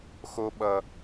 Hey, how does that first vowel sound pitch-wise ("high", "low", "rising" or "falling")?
high